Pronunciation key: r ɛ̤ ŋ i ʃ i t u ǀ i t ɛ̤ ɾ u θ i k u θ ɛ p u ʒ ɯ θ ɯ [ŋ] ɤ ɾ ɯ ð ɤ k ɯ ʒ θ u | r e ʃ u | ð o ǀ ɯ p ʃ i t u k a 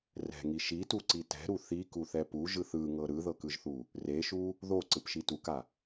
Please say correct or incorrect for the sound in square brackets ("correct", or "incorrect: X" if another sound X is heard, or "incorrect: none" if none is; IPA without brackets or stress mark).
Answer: correct